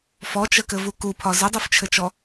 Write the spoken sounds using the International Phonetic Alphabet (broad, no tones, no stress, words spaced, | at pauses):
fɔt͡ʃəkɘvu kupʰɒ zədˤuft͡ʃʰɘt͡ʃɔ